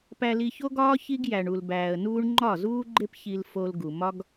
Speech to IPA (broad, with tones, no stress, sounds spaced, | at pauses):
p æ˧ l i˧ ç o˦ ɡ ɒː˦ ç i˦ ɡ j æ˨ ɳ u˨ l b æː˨ ə̯ n uː˦ ɳ ŋ͡ǃ ɒ˦˨ z uː˦ ɡ͡ǃ e˦ p ç i˧ l f o˧ l ɡ u˨ m ɒ˦ ɡ